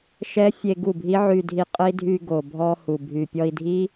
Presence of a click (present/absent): absent